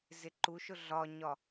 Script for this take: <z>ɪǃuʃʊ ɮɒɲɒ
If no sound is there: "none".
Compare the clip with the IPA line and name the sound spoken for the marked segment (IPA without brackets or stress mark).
z